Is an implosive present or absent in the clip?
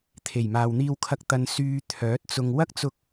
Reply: absent